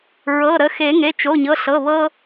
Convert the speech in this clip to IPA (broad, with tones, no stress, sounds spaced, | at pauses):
ɹ ɤ˩˧˩ ɾ ə˩˧˩ x e˨˩˦ ŋ e˩˧˩ t͡ʃ o˩˧˩ ɲ ɤ˩˧˩ ɬ ɤ˩˧˩ β ɤ˧